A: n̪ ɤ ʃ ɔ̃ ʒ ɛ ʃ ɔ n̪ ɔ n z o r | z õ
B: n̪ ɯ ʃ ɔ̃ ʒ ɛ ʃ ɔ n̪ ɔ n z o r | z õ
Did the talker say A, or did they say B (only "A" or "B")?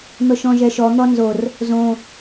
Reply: A